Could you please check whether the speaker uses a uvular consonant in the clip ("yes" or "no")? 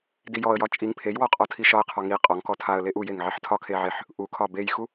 yes